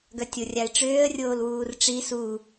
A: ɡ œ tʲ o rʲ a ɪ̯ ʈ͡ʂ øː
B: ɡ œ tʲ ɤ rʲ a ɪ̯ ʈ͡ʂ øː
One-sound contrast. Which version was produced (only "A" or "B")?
A